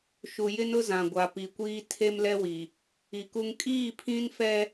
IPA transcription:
ʃ u˨ j ɪ˦ n ʊ˦ z ã˨ ɡʷ a˨ p i˨ kʷ iː˦ tʰ e˦ m l ɛ˦ w i˨ | i˨ k u˦ ŋ kʼ iː˦˨ pʰ ĩ˦ n f ɛ˦

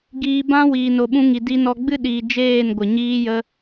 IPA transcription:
ɡ iː˧ b ã˦ w iː˨ n o˨ ɓ ũ˧ ŋ i˨ d i˧ n ɔ˧ ɡ͡b ɨ˦ ɗ iː˨ d͡ʒ eː˦˨ n ɡʷ ə˨ ɲ iː˧ j ə˧

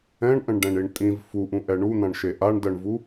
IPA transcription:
ɛ̃ ɳ ʔ ə̃ ɳ ɖ ɛ̃ ɳ i ɳ tʼ ĩ v f u ʔ ũ ʔ ɛ ɳ u n̪ ã ɳ ʃ e ʔ a ɳ d ɜ ɳ v u

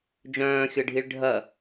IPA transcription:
d͡ʒ œ̃ː xʲ ɤ ɖʱ i ɭ ɖʱ ɐ

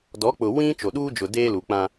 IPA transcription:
d ɔ˨˦ k͡p ʊ˨ w ĩ˦ t͡ʃ o˨ ɗ uː˦ d͡ʒ ʊ˨ d eː˦ l u˨ k͡p ã˦

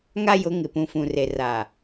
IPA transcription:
ŋ a˦ j ʊ˨˦ ŋ ɪ˨ p ũ˨ f ũ˨ r e˨ r a˨

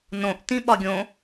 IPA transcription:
n õ ʔ t ĩ ɓ ɒ ɡʲ õ

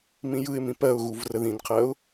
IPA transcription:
m ĩ j ɯ ɪ̯ m ĩ p ɜ ʊ̯ ɣ u v r ə ð ĩ n qʰ ɜ ʊ̯

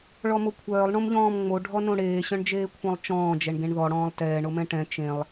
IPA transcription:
ɭ ɔ m o kʷʰ œː lˠ ɳ õ m ʎ ɔ̃ː m ŋ͡m o ɖʱ ɔ n õ ɽ eː ɕ œ̃ ɳ d͡ʒ eː kʷʰ œ̃ lˠ t͡ʃ ɔ̃ː d͡ʒ ɛ ɳ ɡ ẽ ɳ ð ɔ ɽ ɔ̃ː lˠ t ɛː ɳ o m ɛ̃ ʈ ɛ̃ t͡ʃ ẽ lˠ

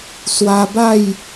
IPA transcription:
s w a˧ b a˥˧ j

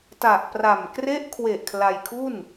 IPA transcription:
t a˨˩ ʔ p r a˨˩ m k r e˦˥ ʔ kʰ w e˨˩ ʔ kʰ l a˧ j kʰ u˥˩ n

